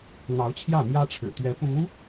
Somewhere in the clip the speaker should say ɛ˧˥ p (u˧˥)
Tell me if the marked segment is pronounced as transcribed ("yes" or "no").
yes